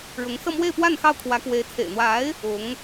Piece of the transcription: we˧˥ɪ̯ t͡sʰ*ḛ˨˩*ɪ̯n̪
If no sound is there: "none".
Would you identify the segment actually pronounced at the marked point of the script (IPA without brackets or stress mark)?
ḛ˨˩